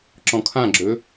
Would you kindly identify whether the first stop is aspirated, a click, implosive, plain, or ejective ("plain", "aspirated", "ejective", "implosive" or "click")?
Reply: click